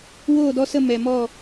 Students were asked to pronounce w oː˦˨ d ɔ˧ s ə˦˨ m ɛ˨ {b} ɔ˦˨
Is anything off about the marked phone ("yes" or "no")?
yes